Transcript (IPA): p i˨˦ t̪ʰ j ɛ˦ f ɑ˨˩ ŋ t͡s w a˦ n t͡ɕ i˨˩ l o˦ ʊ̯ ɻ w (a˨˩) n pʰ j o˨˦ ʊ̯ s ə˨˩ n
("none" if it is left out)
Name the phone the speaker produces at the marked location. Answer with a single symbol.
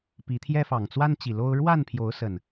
a˥˨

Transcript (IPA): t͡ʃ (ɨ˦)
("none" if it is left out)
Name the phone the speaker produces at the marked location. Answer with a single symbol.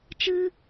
ɨ˦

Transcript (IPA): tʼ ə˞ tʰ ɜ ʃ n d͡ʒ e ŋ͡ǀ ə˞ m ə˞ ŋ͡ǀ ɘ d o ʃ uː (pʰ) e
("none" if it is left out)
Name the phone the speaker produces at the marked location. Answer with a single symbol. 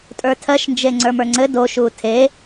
tʰ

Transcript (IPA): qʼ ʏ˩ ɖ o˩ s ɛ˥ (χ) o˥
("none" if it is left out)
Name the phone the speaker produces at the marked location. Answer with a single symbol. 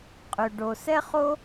χ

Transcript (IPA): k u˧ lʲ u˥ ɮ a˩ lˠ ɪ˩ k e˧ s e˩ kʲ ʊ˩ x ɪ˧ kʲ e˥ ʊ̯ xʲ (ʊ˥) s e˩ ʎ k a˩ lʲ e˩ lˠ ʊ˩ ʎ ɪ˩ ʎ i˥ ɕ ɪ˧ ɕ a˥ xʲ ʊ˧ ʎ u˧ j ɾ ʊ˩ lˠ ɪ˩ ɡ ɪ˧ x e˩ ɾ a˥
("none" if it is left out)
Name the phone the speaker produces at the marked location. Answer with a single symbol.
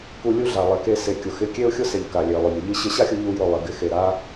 ʊ˥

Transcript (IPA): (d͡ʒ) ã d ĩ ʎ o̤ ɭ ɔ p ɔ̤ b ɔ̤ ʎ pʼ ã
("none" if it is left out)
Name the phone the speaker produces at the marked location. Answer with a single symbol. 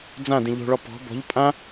d͡z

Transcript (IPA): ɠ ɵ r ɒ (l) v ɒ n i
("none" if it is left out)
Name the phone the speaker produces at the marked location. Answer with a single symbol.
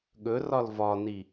l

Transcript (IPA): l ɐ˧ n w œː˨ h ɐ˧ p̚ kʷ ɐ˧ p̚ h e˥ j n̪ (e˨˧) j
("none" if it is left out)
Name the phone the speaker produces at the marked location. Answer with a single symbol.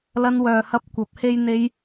e˧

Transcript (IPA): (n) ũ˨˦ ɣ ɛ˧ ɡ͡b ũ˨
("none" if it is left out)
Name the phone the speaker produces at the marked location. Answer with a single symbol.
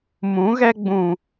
m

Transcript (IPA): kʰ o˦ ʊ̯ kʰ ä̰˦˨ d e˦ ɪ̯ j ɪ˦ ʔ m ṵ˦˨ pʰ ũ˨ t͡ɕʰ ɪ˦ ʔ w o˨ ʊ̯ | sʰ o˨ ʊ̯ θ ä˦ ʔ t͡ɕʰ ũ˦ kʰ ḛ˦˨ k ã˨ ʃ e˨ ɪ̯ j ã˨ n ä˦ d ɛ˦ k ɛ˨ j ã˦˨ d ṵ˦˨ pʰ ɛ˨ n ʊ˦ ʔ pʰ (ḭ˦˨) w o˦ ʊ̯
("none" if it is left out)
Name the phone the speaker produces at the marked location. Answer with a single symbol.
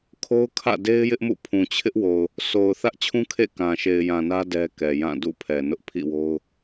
ḭ˦˨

